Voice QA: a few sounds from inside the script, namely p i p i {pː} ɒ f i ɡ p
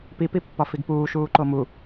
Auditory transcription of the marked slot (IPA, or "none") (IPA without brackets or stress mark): pː